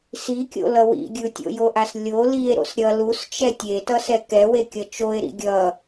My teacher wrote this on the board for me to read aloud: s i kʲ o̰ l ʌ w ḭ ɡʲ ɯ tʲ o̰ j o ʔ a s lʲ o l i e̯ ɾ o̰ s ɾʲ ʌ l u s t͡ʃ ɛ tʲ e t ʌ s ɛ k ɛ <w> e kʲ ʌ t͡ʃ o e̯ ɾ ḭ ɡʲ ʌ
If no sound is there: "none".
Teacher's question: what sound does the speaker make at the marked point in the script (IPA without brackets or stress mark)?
w